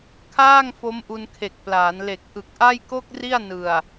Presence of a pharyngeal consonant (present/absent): absent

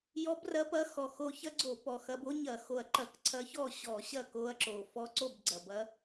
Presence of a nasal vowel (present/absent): absent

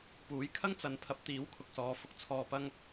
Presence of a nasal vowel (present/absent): absent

